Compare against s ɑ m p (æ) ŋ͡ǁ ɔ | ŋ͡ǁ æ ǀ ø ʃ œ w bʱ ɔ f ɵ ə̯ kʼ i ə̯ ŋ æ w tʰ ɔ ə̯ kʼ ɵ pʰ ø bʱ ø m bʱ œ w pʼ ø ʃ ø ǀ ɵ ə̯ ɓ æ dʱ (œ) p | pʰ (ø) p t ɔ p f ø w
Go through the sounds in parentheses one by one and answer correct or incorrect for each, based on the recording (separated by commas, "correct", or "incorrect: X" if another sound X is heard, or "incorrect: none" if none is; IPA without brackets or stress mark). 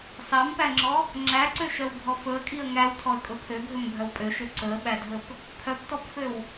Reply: correct, incorrect: ɵ, incorrect: œ